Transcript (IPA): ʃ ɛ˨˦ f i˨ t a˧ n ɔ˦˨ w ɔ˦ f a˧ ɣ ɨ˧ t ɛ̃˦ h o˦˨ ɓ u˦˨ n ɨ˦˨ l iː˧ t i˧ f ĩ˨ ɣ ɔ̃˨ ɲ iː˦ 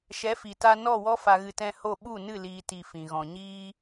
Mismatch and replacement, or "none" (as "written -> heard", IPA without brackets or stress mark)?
none